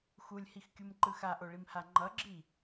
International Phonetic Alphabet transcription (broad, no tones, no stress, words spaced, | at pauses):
xulʲhixkʲumǃɯ xaʔoɭimha ŋ͡ǃʌɡ͡ǁi